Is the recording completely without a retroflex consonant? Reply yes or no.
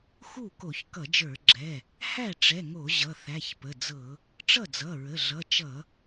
no